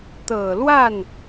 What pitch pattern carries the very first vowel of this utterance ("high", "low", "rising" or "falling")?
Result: low